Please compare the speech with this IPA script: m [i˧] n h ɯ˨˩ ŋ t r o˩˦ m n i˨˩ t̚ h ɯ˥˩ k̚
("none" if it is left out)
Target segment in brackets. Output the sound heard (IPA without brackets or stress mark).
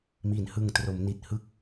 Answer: i˩˦